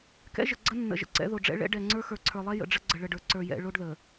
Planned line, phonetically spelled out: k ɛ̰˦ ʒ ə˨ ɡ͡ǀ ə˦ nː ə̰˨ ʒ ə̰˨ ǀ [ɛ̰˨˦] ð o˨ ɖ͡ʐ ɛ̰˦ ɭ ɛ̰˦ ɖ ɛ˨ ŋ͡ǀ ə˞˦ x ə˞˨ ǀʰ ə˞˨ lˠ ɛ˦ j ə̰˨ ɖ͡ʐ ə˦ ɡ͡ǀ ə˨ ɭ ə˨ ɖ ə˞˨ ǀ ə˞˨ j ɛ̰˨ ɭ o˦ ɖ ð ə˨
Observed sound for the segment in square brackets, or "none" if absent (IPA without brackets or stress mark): ɛ̰˨˦